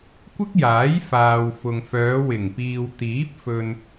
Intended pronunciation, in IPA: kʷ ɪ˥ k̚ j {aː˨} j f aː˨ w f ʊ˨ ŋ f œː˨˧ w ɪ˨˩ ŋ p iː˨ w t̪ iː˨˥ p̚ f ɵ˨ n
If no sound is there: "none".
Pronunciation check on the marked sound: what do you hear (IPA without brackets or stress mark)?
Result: aː˨˥